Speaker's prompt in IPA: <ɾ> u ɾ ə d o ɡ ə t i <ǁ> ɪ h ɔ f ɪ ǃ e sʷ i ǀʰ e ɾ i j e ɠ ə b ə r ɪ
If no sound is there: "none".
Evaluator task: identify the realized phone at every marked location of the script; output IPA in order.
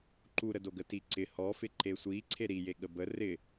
ǃ, ǀ

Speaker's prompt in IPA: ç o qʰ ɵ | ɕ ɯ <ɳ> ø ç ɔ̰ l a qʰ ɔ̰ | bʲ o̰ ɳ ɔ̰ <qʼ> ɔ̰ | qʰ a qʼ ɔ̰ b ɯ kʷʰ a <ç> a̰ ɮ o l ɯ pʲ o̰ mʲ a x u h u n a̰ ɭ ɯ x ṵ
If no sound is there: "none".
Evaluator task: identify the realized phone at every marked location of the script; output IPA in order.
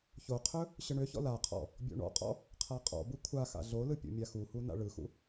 ɳ, qʼ, x

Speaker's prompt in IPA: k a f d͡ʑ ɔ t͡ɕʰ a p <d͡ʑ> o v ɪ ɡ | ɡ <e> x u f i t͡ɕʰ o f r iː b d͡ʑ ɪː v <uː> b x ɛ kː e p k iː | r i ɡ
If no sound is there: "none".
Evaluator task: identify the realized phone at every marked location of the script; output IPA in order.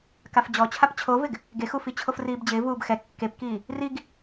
t͡ɕʰ, e, uː

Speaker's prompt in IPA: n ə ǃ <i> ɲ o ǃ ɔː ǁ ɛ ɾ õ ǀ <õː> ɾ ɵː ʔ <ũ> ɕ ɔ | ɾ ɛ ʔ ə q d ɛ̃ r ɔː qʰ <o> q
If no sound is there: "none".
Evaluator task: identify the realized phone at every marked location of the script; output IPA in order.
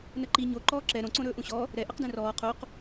i, õ, ũ, o

